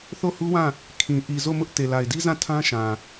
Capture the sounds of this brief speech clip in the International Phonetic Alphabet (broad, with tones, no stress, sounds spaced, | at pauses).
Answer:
θ o˦˨ h u˦ w ã˦˨ | kʰ ĩ˨ ʔ i˨ z o˦˨ m ʊ˦ ʔ t e˨ l a˨ ɪ̯ d i˦ z ã˦˨ tʰ ã˦ ʃ ã˨